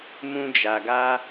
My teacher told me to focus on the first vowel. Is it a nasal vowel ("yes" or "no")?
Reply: yes